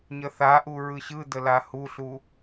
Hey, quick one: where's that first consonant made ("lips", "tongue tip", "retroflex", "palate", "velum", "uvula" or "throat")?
palate